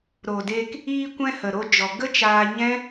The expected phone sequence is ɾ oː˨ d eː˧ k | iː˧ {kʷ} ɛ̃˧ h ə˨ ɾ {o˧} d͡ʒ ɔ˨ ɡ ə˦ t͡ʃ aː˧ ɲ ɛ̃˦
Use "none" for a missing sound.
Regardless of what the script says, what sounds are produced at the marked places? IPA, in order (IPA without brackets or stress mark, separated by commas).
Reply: kʷ, o˧